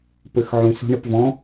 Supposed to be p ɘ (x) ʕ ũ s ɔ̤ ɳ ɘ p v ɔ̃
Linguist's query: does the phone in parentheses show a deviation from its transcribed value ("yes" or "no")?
no